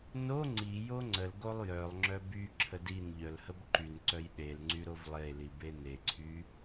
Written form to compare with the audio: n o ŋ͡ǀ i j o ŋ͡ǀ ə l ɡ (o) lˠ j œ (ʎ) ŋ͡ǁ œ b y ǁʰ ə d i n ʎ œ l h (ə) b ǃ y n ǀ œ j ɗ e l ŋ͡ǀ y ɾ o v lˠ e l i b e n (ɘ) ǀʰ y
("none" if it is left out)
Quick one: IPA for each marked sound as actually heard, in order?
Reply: o, lˠ, ə, e

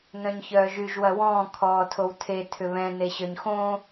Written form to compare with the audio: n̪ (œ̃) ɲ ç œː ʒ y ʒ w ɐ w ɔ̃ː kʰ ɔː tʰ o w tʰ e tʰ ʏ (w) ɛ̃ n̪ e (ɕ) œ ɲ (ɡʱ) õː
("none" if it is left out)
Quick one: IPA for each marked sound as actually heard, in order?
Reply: œ̃, β, ɕ, x

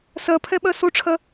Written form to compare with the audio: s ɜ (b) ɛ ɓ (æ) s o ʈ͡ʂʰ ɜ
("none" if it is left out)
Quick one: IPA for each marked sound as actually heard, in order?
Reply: pʰ, ɜ

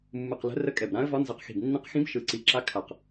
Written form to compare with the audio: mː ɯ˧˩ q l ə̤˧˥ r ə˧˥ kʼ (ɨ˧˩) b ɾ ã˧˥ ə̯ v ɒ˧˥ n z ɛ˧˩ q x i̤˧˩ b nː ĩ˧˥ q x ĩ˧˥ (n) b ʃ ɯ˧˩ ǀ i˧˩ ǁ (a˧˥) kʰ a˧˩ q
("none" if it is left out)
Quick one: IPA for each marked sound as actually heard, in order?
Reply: ɛ˧˩, none, a˧˥

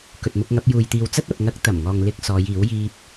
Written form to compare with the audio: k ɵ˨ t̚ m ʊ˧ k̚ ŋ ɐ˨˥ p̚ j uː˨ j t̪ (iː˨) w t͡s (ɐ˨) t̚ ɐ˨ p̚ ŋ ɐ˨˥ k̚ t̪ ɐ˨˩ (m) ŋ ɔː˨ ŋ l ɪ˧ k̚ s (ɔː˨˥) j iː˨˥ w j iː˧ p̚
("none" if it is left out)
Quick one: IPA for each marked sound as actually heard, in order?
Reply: iː˨, ɐ˥, m, ɔː˨˧

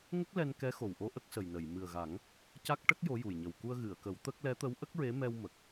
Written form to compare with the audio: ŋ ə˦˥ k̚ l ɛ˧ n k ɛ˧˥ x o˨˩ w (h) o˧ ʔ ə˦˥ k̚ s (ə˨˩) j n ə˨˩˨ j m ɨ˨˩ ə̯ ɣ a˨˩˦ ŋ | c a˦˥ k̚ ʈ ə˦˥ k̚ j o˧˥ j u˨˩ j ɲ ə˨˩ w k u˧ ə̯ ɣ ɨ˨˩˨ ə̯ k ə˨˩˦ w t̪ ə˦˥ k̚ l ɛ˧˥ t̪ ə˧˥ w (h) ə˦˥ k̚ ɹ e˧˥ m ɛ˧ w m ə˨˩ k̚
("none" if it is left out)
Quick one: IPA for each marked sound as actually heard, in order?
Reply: ʔ, ə˨˩, ʔ

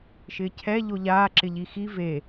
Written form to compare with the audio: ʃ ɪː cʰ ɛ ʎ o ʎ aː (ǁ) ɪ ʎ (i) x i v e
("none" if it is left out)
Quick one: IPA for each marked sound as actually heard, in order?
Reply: ǁ, i

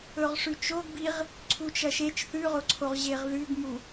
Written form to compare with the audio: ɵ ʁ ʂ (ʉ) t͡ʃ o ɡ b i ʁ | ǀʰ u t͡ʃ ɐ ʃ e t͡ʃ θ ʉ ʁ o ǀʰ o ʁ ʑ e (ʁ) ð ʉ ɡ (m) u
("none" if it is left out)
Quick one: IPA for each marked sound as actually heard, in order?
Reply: ʉ, ʁ, m

